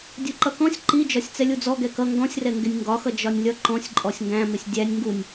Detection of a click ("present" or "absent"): present